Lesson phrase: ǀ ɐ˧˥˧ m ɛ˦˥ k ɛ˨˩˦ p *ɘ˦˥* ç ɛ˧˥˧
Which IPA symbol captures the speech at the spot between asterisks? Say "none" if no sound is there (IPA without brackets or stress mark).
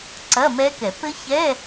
ɘ˦˥